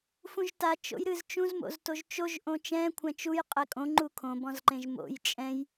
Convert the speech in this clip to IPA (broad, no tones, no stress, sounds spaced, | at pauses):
f ũ ʒ t a t͡ʃ o̰ j ɾ ɨ z t͡ʃ ũ z m o̰ z t o ʒ t͡ʃ o ʒ ʔ õ t͡ʃ ɛ̃ kʷʰ ɛ̃ t͡ʃ u j qʼ ɛ kʼ õ ŋ͡ǃ u kʰ õ b ɔ̃ z ǃ ẽ ʒ m o̰ j t͡ʃʼ ɛ̃ j